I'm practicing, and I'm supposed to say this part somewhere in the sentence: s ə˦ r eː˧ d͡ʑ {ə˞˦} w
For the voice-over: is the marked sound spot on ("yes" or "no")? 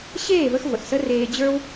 yes